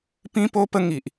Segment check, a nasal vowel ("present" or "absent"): present